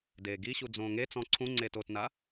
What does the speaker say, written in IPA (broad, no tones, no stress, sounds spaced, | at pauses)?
d eː ɡ i ɕ u d͡z õː ŋ e t͡s ɔ̃ ǀʰ ũ ŋ͡ǀ eː t o t n a